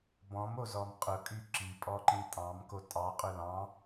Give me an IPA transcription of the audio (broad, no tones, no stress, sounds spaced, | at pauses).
b ɔ̃ m o z ɔ m qʼ ʊ kʼ y ǁ i pʼ ɔ ǃ ĩ tʼ ɑ̃ m k o tʼ ɑ qʼ ɵ l ɑ̃